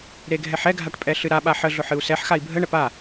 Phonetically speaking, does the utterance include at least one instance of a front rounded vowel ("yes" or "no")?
no